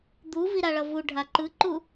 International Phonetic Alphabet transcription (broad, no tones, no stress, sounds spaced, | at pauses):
d̪ u v i ɾ a ɭ ʌ v u ɖʱ a ǃ ɯ ǃ u